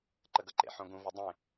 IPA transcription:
ǃəɡʌǃḛħõ ɡũvʌ dˤẽ

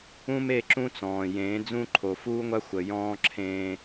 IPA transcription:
ũ˦me˦˨ ǁũ˦t͡sɔ̃ː˨ jẽː˨˦d͡zũ˦ ǃʰo˨fuː˦ŋʷa˦ xʷə˨jɔ̃ː˦ǁʰẽː˦

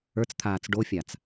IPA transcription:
ə˞t͡st̪ʰaːt͡s ɖofʲat͡s

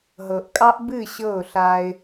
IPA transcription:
ɦɤ˨ʔkʼɑ˦ʔ bɨ˦˨ɕɤ˦˨ʊ̯ɬa˦ɪ̯

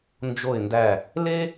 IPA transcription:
nd͡ʒo˧˩ɪ̯ndæ˧˩ | le˥

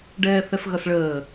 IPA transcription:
ɖɛːθɛfɣʌsɭəː

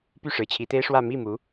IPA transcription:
py˥˩ʂɻ̩˧˥t͡ɕʰi˧˥t̪e˥ɪ̯ ʂwä˥˧ mi˥˩mu˧˥

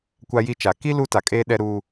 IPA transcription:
kʷa˦ji˦t͡ʃa˨ ki˦ lu˦ta˨kʼeː˦ɗɛ˦ ɾu˦

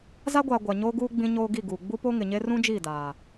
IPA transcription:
za˦ɡʷaː˨ ɡʷa˨ɲoː˦ɡuː˦ ɡ͡bĩ˦ɲoː˦ ɡi˦˨ɡuː˨ ɡ͡bu˦po˦ ŋɪ˨ɲe˦ rũ˦d͡ʒiː˦˨ daː˨

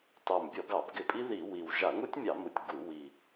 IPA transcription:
tɑ˨˩mbʲɔ˧˩˧ɡɑ˧˩˧b ɡɪ˧˩˧pʼi˦˥ði˧˩˧ wi˨˩w ʒa˧˩˧ŋu˦˥tʲmʲɑ˧˩˧mu˨˩tʲ ɡu˧˩˧ wi˨˩

